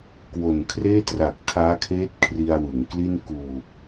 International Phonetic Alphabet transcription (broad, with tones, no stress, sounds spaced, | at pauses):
k w o˨˩ n kʰ r eː˥˩ t r a˨˩ k̚ tʰ aː˦˥ kʰ eː˦˥ t̚ kʰ r i˧ a̯ w ɯ˩˦ ŋ k l i˥˩ n k uː˨˩ p̚